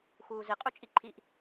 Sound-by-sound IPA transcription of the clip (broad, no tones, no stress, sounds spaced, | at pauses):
x uː z i qʼ u t͡ʃʼ i ǃʰ i ʔ